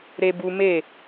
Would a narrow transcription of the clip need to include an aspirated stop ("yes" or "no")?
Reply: no